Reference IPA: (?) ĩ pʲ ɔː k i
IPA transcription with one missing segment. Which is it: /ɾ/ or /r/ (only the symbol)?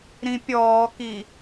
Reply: ɾ